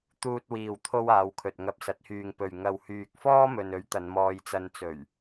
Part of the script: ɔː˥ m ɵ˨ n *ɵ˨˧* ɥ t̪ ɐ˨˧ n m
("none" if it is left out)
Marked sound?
ɵ˨˥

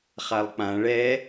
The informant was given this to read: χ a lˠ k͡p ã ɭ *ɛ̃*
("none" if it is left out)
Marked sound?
ɛ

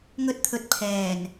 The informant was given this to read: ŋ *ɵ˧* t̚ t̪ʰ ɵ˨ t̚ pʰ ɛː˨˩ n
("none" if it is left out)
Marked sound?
ɵ˧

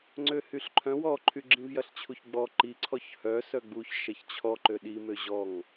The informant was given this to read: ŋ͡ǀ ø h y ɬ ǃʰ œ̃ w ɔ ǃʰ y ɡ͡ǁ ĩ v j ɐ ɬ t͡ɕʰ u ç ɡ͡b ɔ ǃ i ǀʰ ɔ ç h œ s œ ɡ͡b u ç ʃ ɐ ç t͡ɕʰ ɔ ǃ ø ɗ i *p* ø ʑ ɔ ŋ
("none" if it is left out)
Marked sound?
m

